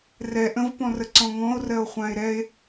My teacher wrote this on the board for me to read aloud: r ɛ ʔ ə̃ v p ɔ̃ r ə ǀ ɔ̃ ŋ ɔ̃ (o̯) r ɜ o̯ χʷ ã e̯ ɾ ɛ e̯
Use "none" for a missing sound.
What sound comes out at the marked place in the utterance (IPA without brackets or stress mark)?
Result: o̯